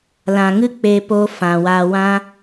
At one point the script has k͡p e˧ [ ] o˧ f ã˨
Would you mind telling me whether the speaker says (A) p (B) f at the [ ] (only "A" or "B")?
A